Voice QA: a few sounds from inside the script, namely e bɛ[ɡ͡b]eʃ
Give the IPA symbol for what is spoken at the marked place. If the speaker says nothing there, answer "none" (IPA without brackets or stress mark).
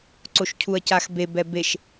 b